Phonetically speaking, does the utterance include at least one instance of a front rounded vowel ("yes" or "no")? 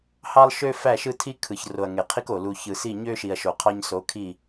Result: yes